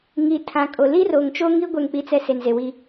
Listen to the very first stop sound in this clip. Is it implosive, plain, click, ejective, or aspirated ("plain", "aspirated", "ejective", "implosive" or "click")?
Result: aspirated